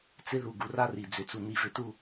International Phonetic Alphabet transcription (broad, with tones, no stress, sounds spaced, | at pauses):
t͡s ɪ˦ ð u˨ ɡ u˨ r a˦ r i˨ d͡z ʏ˨ t͡s u˨ n̪ i˨ v ʏ˨ t u˦˨